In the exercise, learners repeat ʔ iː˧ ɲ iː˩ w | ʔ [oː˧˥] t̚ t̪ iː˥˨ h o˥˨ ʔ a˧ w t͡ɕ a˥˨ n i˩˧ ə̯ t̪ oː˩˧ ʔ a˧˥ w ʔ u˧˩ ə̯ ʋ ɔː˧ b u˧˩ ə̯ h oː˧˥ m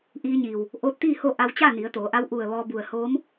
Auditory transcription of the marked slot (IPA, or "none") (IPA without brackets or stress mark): oː˧˥